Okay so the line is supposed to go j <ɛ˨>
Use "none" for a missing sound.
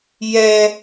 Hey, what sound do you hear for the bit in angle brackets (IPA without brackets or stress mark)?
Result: ɛ˦